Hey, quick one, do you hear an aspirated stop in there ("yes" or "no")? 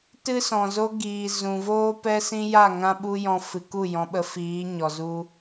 no